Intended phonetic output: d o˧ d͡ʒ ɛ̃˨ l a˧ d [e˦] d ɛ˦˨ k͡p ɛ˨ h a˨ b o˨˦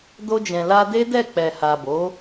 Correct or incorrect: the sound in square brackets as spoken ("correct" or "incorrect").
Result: correct